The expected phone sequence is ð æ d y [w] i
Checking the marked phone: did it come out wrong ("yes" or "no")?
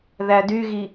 yes